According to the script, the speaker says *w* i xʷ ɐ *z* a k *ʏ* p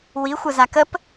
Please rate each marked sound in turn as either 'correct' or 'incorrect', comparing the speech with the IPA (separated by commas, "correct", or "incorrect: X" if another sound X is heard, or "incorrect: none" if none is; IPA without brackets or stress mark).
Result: correct, correct, incorrect: ə